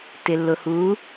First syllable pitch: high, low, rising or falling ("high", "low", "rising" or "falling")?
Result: low